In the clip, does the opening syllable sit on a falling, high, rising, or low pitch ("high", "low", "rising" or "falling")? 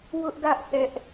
high